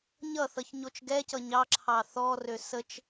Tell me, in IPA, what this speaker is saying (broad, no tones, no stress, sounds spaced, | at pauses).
ɲ ʌ θ ʌ ç ɲ o t͡ʃ ɡ ɛ c ʌ ɲ ɑ ǁʰ ɑ θ ɔ r ø s ə t͡ʃ